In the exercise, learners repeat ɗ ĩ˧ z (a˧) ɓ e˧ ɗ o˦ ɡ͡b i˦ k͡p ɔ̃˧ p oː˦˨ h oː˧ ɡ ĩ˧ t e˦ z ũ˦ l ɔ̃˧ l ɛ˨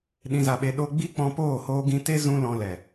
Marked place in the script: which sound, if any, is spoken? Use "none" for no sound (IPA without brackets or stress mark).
a˧